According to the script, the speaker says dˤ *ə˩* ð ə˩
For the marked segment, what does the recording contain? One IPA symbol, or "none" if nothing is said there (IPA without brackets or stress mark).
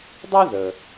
ə˥